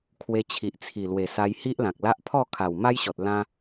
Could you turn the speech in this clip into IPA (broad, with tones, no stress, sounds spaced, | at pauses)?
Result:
kʰ w e˧ t͡ɕʰ i˨ ʔ t͡sʰ i˨˩ l w e˨˩ s a˧ j h i˦ ʔ l ã˨ k̚ l a˦ ʔ pʰ ɔ˥˧ kʰ a˨˩ w m a˦ j ɕ ɔ˨ t̚ l ã˦